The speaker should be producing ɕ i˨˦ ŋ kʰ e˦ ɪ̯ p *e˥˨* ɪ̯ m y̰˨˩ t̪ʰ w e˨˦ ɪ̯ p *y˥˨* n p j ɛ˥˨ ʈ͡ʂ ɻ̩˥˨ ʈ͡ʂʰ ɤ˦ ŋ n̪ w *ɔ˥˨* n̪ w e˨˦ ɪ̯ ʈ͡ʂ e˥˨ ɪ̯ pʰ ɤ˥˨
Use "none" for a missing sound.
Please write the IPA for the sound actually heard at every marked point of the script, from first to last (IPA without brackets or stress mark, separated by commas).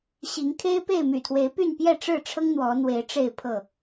e˥˨, y˥˨, ɔ˨˦